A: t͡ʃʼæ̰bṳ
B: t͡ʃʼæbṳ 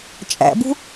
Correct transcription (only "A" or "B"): A